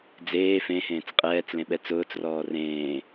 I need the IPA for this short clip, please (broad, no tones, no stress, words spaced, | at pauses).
d͡zeː fẽhẽːt͡s qʼɛːt͡slẽɓɛ t͡sʊːt͡srɔː rẽː